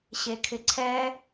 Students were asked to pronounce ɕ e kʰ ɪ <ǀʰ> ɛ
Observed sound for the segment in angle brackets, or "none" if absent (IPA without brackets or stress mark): ǀʰ